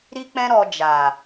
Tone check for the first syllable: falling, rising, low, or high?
high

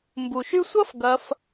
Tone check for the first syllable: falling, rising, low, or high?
low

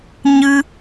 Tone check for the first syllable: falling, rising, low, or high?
high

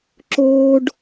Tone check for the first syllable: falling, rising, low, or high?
high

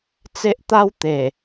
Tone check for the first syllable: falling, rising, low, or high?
high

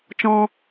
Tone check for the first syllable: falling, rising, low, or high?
high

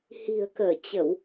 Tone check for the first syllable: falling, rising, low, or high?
low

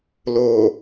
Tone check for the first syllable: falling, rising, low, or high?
low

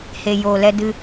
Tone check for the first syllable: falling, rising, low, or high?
low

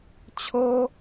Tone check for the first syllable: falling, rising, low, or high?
high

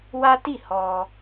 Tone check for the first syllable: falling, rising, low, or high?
high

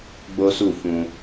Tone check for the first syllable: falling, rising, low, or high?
high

